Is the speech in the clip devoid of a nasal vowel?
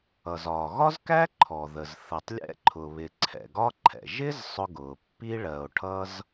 yes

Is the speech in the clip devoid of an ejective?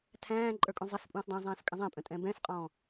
no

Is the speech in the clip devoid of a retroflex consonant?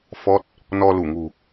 yes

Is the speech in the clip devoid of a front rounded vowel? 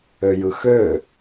no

